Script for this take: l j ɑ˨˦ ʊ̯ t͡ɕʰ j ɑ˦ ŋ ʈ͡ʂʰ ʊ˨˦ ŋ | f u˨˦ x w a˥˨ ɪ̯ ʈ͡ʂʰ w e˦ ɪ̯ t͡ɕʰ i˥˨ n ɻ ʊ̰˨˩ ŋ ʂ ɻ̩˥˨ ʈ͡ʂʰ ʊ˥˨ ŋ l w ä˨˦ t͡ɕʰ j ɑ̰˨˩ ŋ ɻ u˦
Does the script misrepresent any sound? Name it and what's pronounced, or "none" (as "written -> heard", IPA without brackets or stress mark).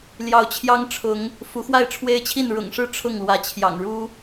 none